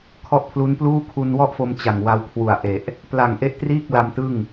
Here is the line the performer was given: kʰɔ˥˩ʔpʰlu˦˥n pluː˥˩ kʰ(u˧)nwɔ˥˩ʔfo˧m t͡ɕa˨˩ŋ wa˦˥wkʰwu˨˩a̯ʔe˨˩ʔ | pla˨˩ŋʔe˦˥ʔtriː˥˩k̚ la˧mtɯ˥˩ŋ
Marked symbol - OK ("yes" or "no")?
yes